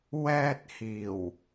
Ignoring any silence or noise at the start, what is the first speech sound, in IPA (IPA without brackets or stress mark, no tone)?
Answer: w